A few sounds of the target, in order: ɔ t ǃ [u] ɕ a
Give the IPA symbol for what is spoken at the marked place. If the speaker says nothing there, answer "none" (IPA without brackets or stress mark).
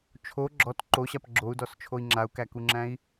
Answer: o